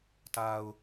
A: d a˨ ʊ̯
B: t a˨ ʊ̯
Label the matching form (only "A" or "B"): B